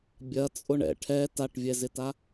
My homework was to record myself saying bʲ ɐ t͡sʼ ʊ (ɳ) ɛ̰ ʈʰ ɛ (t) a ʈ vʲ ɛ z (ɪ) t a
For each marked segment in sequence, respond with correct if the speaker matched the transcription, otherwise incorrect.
correct, correct, correct

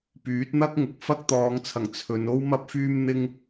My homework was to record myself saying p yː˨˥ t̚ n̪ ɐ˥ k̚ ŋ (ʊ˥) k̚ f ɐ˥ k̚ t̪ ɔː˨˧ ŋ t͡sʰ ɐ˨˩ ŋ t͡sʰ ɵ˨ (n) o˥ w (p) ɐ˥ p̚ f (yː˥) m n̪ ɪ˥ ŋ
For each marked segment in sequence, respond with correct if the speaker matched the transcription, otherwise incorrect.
incorrect: ʊ˨˥, correct, incorrect: m, correct

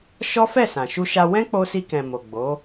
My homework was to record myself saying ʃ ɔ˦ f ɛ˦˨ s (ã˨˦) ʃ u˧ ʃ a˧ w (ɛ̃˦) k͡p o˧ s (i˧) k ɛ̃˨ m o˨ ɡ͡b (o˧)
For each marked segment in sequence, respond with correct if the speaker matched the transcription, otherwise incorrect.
incorrect: ã˨, correct, correct, incorrect: o˨˦

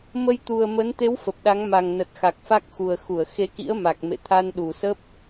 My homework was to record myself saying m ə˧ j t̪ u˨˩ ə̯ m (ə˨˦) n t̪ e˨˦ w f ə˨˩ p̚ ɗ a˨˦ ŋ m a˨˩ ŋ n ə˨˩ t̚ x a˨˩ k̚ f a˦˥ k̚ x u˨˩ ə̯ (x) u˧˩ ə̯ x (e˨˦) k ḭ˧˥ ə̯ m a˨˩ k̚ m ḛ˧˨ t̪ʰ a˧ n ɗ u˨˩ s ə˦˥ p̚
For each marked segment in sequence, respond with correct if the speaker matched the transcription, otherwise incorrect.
correct, correct, correct

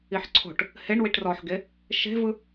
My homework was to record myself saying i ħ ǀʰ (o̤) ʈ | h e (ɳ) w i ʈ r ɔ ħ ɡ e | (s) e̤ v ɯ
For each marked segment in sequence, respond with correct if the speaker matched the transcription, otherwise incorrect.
correct, correct, incorrect: ʃ

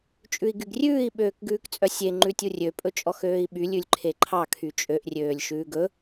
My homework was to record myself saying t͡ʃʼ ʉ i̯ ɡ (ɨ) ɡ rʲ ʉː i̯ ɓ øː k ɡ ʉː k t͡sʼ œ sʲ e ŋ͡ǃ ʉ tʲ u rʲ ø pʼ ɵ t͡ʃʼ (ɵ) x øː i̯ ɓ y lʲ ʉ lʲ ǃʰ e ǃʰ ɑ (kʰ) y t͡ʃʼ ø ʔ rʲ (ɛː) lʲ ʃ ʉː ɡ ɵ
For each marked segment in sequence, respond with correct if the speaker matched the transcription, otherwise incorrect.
incorrect: y, incorrect: ɔ, correct, incorrect: øː

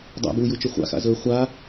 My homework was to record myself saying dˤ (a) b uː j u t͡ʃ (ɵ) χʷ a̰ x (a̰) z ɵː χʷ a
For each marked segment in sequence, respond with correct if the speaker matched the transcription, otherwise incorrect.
incorrect: a̰, correct, correct

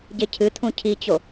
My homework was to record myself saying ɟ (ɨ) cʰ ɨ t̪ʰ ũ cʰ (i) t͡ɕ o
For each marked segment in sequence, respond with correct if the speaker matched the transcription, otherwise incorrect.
incorrect: e, correct

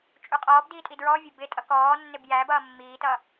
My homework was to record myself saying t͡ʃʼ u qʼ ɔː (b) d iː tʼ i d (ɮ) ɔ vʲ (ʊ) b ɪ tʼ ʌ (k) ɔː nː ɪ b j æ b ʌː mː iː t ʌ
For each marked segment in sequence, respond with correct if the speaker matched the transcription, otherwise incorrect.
correct, incorrect: ɹ, correct, correct

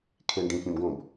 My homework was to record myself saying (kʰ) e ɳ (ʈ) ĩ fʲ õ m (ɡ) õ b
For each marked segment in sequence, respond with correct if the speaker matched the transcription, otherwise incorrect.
correct, incorrect: ɖ, correct

